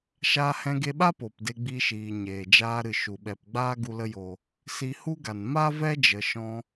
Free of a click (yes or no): yes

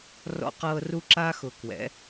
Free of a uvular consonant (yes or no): no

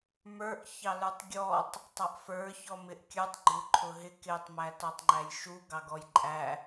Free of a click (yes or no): no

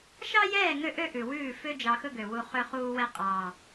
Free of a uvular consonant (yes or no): no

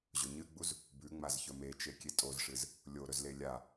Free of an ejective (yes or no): no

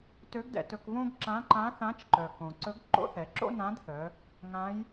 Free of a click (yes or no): no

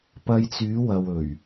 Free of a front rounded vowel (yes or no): no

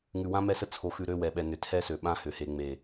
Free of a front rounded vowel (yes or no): no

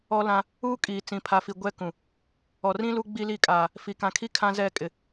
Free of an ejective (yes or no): no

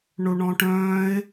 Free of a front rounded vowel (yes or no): no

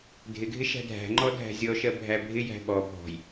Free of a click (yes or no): no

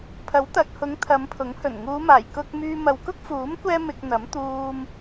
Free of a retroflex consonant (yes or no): yes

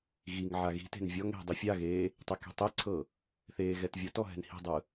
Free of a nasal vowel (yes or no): yes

